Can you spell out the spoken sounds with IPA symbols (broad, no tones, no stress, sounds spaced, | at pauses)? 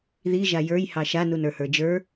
ð i ʒ a j ə˞ j h ɑ ʃ a n u n ə˞ h ə˞ d͡ʒ ə˞